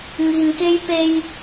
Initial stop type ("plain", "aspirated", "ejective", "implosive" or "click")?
plain